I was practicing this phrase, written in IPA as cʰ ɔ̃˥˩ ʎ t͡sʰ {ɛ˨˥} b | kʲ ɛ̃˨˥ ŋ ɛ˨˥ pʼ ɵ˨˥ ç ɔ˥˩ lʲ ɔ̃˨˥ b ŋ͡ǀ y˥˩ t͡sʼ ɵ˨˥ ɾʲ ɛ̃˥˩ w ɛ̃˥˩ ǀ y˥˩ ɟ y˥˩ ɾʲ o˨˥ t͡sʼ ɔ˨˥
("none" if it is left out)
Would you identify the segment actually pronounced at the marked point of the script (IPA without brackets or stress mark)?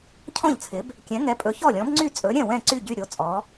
ɪ˨˥